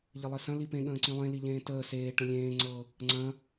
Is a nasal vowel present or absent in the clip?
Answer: present